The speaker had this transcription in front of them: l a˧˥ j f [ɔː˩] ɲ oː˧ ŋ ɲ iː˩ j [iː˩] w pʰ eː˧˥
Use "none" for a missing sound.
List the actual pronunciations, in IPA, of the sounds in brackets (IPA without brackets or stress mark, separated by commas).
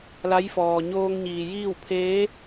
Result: ɔː˩, iː˥˨